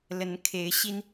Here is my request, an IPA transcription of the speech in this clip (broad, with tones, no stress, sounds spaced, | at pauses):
l ə˨˦ n kʰ e˨˦ ɪ̯ ɕ i˦ n